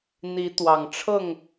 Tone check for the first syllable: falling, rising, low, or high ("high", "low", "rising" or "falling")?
rising